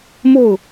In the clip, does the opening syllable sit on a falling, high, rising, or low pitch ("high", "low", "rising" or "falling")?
falling